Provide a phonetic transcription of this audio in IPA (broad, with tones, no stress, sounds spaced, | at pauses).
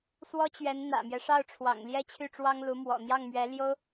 s w ɔ˥ t͡ɕ ɥ ɛ˧˥ n n̪ ä̰˨˩ m j ɛ˦ ʂ ɑ˥˩ ʊ̯ ʈ͡ʂʰ w ɑ̰˨˩ ŋ l j ɛ˥ t͡ɕʰ y˥˩ ʈ͡ʂ w ɑ˥ ŋ l u˧˥ m w ɔ̰˨˩ n̪ j ɑ˥˩ ŋ m ɥ ɛ˧˥ l j o˥ ʊ̯